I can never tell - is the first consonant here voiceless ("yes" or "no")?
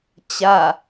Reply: yes